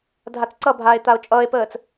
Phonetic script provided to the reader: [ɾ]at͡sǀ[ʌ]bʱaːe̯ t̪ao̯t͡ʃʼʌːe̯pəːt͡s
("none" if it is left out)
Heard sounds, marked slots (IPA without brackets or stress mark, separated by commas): dʱ, ʌ